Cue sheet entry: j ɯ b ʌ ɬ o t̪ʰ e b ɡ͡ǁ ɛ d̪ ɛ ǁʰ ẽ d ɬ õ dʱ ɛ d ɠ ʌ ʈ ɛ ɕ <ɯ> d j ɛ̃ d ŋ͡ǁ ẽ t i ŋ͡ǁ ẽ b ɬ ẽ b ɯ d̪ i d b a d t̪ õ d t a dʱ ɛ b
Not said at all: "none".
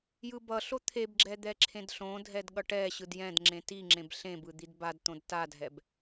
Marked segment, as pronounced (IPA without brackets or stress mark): ɯ